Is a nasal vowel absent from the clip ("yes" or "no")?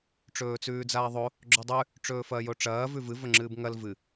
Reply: yes